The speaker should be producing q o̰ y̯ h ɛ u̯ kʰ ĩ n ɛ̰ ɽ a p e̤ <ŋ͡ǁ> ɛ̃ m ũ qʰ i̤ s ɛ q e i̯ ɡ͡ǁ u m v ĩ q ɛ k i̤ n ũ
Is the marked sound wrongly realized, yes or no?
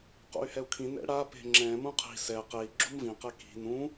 no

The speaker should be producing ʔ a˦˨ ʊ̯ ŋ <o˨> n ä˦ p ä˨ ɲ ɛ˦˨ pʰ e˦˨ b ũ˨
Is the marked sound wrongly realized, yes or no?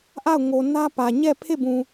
no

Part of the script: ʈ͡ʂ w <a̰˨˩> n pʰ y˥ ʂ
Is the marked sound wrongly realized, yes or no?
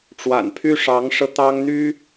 no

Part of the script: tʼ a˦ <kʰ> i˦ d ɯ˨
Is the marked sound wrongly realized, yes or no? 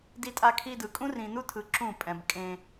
no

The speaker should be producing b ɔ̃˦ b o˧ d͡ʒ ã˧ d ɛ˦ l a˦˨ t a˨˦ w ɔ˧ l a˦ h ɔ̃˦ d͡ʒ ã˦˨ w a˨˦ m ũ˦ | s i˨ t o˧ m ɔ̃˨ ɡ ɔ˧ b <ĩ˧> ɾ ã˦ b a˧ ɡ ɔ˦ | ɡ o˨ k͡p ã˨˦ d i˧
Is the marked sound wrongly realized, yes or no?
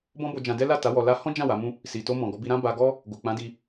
yes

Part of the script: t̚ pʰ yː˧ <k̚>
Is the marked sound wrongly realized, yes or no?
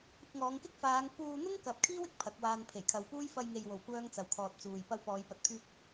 no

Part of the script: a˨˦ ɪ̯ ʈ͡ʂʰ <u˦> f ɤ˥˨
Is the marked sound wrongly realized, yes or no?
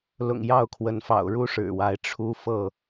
no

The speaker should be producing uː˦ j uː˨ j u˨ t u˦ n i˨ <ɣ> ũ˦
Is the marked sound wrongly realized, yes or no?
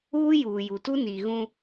no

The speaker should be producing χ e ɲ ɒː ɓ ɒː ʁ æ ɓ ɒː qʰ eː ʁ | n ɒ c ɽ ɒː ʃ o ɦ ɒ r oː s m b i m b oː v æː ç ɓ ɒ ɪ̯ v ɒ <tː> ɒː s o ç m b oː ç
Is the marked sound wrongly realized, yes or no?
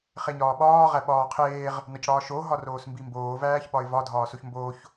yes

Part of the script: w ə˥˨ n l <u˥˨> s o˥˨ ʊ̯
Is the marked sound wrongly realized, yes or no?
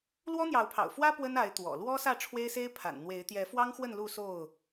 no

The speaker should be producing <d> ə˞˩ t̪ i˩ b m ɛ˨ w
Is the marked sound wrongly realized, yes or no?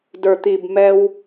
no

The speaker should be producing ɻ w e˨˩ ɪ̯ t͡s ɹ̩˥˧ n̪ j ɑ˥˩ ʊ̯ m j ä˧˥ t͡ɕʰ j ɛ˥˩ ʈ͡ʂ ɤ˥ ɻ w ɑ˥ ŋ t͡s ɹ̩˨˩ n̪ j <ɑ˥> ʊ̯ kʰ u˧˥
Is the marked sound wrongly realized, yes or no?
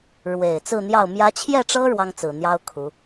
no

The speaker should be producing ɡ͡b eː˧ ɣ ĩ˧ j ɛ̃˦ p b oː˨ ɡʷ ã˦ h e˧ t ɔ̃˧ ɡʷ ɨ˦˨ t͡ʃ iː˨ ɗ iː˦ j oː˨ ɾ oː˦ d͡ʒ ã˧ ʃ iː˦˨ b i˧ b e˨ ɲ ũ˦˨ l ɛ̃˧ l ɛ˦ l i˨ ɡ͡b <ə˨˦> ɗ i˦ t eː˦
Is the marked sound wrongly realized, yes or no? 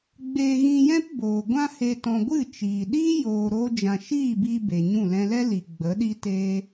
no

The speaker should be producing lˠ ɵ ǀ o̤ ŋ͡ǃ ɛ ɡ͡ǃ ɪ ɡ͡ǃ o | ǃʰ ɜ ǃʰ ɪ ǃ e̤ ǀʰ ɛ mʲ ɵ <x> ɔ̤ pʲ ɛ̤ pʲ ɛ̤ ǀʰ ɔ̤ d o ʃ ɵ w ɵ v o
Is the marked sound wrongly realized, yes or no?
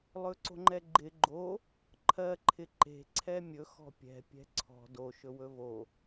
no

